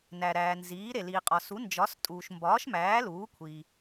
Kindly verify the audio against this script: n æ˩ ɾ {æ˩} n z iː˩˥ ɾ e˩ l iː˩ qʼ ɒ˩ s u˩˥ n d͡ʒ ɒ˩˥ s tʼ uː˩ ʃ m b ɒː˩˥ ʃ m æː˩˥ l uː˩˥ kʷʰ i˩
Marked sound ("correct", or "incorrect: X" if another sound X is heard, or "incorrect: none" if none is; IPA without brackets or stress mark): incorrect: æː˩